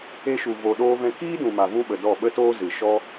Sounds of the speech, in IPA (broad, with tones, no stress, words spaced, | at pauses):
e˧ʃu˨ vo˧ɗoː˦vɛ̃˦ kiː˦dũ˨ma˨ vũ˦ɓə˨dɔ˦˨ ɓə˦toː˦ zɨ˨ ʃɔ˦